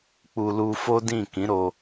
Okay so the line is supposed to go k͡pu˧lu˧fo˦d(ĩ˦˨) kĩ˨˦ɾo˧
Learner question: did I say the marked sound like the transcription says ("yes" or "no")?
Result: yes